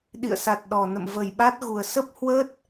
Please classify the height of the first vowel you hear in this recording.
high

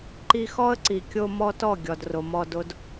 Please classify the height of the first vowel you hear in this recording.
high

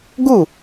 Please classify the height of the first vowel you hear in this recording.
high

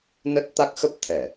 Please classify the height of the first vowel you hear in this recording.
mid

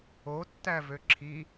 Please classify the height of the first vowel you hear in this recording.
mid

